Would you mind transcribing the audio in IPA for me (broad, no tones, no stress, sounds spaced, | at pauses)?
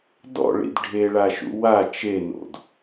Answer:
d ɔ̰ ɭ ḭ d ɖʱ e ɭ a ʃ ṵ w a t͡ʃ e n o̰ d